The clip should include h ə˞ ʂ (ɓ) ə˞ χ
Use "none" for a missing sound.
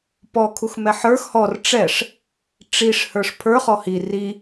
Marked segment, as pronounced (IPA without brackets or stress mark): pʰ